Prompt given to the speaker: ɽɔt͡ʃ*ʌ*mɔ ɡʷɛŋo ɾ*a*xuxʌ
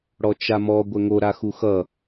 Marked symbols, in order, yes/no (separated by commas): no, yes